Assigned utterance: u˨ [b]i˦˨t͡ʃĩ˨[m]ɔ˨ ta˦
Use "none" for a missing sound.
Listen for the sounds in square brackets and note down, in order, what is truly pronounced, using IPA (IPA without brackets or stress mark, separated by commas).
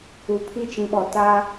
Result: pʰ, ɓ